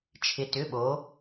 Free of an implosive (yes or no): no